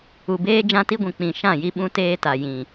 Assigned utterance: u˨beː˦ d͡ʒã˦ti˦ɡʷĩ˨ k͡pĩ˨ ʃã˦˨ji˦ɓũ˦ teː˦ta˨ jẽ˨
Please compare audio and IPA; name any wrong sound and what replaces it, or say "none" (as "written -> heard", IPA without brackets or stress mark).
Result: ẽ˨ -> ĩ˨